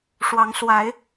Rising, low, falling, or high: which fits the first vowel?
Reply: rising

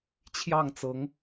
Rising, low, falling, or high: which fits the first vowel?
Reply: falling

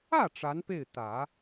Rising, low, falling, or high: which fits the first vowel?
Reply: falling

